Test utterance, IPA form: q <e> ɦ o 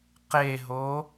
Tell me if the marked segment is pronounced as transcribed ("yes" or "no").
yes